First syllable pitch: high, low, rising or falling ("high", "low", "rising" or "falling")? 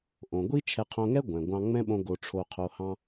low